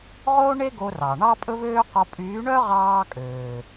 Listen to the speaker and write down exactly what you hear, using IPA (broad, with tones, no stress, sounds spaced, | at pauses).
ʁ o˦ ɳ e˦ ɡ o˧ r ɑ˨ ɳ ɑ˦ pʼ ɵ˦ v øː˦ q ɔ˧ pʼ yː˨˦ ɳ œ˦ ʁ ɑː˦ kʼ øː˨